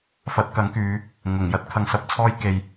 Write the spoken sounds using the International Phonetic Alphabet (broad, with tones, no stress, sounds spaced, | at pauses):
f ɐ˨˥ t̚ k ɐ˨˥ ŋ k yː˨˧ | ŋ ʊ˨˩ ŋ j ɐ˥ t̚ kʰ ɐ˧ ŋ s ɐ˧ p̚ t͡sʰ ɔː˥ j k e˨ j